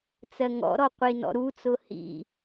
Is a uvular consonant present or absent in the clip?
present